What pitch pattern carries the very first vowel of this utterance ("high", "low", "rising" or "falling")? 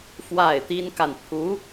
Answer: falling